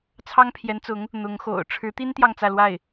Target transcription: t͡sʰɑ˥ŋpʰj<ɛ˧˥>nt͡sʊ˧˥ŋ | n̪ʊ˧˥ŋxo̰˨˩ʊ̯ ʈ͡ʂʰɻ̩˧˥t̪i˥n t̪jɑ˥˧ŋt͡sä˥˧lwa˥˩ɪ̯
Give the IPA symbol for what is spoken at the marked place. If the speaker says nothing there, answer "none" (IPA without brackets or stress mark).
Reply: ɛ˧˥